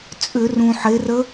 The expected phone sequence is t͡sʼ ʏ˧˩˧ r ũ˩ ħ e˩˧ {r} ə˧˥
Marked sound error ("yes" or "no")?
no